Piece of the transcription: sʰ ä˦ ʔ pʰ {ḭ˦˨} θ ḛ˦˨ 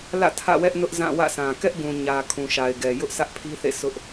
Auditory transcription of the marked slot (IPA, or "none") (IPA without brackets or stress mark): i˦